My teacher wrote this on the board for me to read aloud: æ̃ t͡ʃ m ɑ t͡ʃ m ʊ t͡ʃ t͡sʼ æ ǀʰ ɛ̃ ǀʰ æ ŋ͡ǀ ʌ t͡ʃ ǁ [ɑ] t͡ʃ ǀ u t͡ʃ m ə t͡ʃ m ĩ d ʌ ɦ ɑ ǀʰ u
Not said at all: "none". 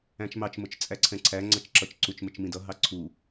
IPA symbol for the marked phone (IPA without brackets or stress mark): ʌ